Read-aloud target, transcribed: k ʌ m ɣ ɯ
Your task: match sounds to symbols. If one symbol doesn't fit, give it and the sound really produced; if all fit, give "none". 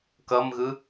none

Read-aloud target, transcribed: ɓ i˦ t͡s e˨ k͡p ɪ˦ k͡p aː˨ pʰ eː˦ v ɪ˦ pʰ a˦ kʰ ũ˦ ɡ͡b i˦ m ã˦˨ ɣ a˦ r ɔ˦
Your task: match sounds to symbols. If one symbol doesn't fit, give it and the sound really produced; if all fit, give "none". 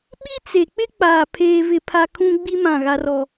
none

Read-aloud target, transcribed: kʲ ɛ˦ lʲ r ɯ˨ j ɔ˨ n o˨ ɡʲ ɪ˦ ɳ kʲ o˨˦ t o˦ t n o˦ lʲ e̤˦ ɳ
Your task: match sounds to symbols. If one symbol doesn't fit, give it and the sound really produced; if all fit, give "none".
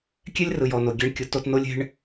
ɪ˦ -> ɛ˦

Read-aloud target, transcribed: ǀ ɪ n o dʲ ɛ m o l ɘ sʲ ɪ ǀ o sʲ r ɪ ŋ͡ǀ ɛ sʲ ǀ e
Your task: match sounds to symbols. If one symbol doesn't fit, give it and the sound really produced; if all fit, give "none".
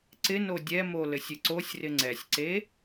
none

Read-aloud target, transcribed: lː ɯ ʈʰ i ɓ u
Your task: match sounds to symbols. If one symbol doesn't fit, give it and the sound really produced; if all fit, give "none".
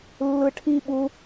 none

